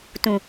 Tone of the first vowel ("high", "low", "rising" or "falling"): low